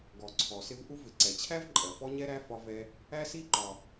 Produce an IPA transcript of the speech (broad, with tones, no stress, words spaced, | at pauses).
ɡɔ˩ ǀʰɔ˩sɪ˦v ʔu˦vɪ˩ ǀɛ˩t͡ɕʰæ˦v ǃʼɜ˩fɔ˦ɲɛ˦ɾæ˦ fɒ˦vɛ˦ | æ˦si˦ǃɒ˩